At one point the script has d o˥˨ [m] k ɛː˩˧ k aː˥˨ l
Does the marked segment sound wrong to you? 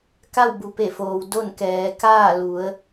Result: yes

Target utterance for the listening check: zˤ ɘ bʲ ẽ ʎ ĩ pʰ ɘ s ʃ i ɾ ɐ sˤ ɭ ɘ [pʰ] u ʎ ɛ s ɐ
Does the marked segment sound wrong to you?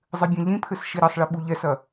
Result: yes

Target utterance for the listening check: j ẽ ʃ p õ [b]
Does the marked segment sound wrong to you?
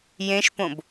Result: no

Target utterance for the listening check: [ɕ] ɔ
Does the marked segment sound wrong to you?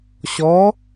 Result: no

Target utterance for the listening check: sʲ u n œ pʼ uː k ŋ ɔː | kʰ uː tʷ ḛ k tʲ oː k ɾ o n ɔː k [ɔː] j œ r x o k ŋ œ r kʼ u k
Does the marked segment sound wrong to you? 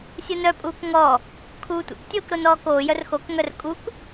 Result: yes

